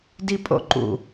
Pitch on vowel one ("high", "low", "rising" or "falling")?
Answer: high